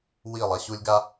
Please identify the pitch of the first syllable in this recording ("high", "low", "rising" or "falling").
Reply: falling